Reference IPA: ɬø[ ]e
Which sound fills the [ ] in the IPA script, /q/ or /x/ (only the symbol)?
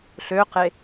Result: q